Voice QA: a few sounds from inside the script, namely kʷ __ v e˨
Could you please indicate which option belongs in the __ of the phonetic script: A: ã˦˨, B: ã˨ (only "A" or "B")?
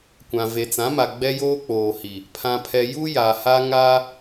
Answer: B